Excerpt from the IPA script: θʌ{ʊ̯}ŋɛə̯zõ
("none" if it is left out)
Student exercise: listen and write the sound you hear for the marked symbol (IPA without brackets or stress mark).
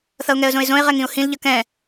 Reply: ʊ̯